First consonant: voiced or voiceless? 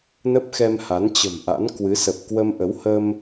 voiced